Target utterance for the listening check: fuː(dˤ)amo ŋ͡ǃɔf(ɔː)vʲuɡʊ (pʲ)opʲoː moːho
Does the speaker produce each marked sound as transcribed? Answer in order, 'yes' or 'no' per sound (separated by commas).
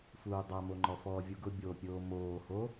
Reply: yes, yes, no